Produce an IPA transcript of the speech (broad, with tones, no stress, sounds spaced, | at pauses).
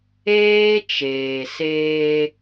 eː˦ t͡ʃ eː˨ s eː˦